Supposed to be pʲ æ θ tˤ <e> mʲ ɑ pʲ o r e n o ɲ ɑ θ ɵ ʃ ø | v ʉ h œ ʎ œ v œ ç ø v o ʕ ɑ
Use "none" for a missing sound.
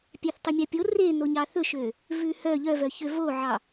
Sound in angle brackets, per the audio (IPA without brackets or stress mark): y